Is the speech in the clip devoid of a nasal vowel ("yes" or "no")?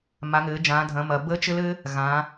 no